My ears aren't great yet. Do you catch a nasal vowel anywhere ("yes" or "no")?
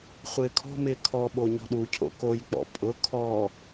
no